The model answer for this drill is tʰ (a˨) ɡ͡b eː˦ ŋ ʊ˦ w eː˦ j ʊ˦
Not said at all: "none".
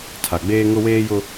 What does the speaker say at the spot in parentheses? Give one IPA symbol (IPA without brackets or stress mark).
a˨